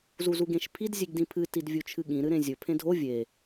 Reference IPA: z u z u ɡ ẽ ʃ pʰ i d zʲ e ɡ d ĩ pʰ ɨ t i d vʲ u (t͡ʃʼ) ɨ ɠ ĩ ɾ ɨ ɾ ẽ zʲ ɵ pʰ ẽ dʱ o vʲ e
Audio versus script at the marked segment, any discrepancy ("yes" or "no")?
yes